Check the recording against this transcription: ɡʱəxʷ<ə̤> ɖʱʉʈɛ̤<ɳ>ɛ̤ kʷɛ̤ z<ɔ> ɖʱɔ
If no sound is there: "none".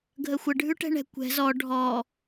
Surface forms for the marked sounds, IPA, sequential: ə, ɳ, ɔ

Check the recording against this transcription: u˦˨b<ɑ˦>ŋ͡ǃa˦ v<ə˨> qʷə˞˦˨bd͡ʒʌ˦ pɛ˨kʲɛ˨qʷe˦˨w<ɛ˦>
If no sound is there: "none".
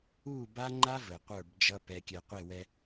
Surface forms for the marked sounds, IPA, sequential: a˦, ə˨, ɛ˦

